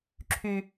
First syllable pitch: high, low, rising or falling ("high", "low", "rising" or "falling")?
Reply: high